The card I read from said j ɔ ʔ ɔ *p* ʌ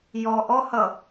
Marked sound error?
yes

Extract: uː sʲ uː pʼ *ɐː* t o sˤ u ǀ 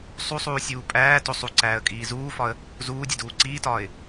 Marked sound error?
yes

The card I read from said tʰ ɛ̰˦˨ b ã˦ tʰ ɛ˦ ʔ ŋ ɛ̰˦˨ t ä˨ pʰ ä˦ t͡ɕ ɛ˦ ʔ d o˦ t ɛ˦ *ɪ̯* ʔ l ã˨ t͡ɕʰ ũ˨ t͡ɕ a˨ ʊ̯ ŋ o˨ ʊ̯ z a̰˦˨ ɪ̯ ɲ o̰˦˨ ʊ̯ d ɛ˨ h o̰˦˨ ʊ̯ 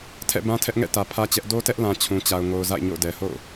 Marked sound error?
yes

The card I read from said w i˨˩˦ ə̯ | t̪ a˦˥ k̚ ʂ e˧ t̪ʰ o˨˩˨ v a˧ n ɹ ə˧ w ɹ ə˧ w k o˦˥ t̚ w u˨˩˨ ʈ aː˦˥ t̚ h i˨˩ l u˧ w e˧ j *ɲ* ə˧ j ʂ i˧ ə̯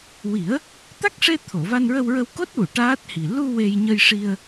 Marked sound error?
no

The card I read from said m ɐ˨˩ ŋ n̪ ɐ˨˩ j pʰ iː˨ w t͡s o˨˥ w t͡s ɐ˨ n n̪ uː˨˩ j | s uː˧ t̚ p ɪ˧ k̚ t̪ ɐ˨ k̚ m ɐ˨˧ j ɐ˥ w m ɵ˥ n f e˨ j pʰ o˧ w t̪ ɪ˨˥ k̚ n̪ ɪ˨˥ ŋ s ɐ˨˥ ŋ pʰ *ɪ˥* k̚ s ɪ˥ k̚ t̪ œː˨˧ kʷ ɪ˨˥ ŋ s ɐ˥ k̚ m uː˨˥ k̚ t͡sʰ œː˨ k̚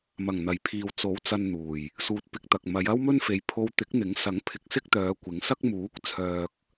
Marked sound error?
yes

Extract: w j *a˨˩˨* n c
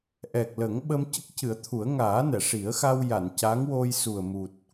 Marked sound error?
no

